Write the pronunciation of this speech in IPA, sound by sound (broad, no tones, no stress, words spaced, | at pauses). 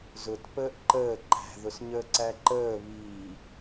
zʊt pəːʔǃəː ǃæ̤ðʊs ɲəːǀæǃəː βiː